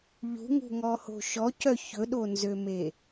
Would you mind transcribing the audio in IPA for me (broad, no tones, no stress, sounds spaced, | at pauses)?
ʎ ṳ ŋ ṳ ŋ ɔ h o̤ ʃ ɔ c œ ç ɵ ɗ o n z ø m e